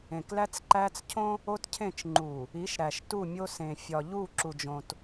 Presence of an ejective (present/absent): absent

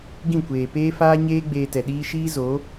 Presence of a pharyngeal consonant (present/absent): absent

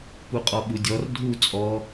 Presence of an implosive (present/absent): present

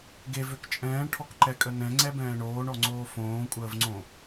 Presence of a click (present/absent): present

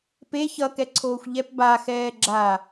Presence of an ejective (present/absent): absent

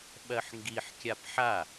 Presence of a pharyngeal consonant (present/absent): present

